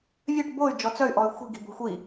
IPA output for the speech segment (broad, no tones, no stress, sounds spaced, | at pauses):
vʲ ø ʈ b o y̯ d͡ʒ ɔ t͡s œ y̯ ʔ ɔ y̯ xʷ i̤ ɡ i̤ b o̤ xʷ i